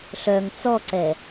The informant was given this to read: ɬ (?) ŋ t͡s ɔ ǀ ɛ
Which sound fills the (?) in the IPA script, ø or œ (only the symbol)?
œ